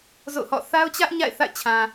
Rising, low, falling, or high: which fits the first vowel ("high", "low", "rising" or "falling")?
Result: falling